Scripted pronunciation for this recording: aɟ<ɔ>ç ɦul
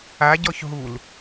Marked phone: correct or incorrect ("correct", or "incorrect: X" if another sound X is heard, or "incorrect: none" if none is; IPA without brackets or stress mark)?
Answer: correct